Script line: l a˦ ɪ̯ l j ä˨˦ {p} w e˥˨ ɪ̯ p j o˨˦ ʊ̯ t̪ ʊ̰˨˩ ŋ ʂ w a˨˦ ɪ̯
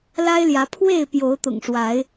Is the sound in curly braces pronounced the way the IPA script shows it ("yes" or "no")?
no